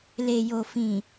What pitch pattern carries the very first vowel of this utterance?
low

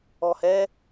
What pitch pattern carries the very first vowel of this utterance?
low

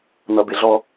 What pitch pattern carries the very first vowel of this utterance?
low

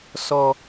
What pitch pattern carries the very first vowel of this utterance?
low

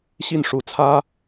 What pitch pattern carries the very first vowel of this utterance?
falling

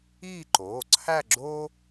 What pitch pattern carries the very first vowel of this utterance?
falling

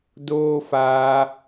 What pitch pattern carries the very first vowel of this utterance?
high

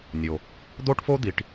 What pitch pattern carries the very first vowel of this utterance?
low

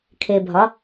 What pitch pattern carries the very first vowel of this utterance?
low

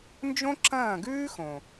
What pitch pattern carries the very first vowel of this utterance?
high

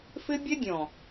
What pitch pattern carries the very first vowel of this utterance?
high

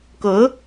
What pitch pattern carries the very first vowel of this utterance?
rising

